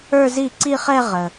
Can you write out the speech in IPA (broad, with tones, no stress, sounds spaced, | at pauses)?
ə˞˥˧ z i˥˩ ǀ i˥˧ χ ɛ˥˧ ʁ ə˨˩